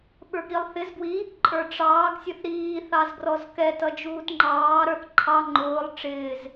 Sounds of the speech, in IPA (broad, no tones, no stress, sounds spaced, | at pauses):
ɓ ə˞ ɡ ɾ i lˠ θ ɪ z ɡ w i | ǃʼ ə˞ ʈ͡ʂ ɑː ɡ sʲ ə θ ɾ iː θ ɑ z ɡ r ɔ z k ɛ t ʌ d͡ʒ uː t ŋ͡ǃ ɑː ɾ ə˞ θ ǃʰ ɑ ŋ͡ǃ ʊː lˠ ʈ͡ʂ ɪː z